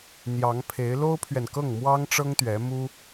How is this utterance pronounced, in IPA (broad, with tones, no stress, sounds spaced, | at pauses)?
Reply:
n̪ j ɑ˧˥ ŋ pʰ e˧˥ ɪ̯ l o˥ ʊ̯ pʰ ɥ ɛ˨ n k ɤ˥˩ ŋ m w ɑ˥ ŋ ʈ͡ʂ ɤ˥ ŋ t̪ ɥ ɛ˧˥ m u˥